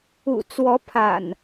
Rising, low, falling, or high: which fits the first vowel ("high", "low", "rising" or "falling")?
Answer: low